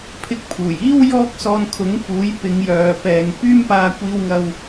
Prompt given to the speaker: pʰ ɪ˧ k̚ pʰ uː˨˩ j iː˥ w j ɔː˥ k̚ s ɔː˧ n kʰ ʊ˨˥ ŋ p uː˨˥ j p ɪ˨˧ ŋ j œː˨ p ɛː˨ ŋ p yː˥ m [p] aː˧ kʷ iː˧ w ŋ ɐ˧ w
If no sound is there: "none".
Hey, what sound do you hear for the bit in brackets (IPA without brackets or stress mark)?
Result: p